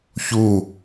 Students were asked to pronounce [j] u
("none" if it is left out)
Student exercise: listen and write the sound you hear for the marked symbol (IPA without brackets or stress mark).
ç